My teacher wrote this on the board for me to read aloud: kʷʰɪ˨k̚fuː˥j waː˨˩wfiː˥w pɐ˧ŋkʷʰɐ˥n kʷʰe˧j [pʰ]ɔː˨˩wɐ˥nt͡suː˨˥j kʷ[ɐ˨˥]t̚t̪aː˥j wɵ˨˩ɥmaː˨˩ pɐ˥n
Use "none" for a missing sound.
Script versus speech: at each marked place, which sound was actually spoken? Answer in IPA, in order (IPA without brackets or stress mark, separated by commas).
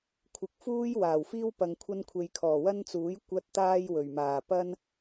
kʰ, ɐ˥